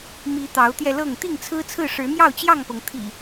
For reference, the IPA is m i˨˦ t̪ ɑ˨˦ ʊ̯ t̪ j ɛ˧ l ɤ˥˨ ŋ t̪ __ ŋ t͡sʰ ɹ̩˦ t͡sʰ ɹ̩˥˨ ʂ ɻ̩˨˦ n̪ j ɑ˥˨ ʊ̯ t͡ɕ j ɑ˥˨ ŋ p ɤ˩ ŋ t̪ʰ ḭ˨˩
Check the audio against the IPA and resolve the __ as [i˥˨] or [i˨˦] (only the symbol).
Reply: i˥˨